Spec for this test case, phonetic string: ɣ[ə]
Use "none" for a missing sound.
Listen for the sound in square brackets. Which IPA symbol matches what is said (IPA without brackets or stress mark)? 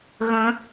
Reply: ə̃